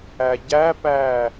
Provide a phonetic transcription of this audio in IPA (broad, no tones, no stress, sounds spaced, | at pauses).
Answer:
æ ɟ æ p æː